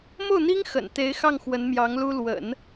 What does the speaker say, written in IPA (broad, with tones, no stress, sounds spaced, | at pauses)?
m o˥˩ ʊ̯ n̪ i˥ ŋ x ə̰˨˩ n t̪ e˧˥ ɪ̯ x ɑ˥˩ ŋ x w ə˧˥ n m j ɑ˧˥ ŋ l u˥ l w ə̰˨˩˦ n